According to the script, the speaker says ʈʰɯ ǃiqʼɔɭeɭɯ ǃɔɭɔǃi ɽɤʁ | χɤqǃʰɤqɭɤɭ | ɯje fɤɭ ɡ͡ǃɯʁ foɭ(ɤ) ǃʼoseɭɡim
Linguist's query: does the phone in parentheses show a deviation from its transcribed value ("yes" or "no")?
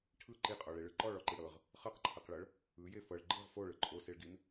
yes